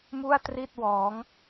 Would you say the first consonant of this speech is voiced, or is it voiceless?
voiced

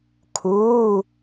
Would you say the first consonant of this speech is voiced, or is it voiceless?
voiceless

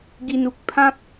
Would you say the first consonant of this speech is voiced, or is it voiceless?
voiced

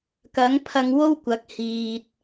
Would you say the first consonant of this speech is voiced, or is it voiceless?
voiceless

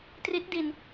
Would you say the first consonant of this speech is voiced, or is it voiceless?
voiceless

